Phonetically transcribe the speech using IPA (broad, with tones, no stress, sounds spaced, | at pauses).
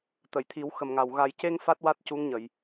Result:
t̪ ə˨˩˨ j t̪ʰ i˨˩˦ w x ə˨˩ m ŋ a˨˩ w ɣ a˨˩ j c e˧ ŋ f a˦˥ t̚ w a˦˥ t̚ c u˧˥ ŋ ɲ ə˨˩˨ j